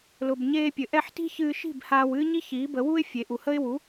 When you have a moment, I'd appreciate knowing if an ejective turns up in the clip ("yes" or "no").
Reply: no